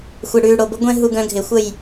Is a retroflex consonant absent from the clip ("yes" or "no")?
no